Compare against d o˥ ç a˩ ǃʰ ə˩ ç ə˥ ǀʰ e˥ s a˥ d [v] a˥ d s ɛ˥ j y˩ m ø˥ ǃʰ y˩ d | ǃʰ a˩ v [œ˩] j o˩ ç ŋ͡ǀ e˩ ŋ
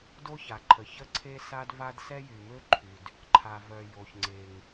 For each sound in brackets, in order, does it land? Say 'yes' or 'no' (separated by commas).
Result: yes, yes